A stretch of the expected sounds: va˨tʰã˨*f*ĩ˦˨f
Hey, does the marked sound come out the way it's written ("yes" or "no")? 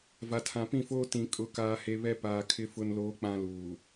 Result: no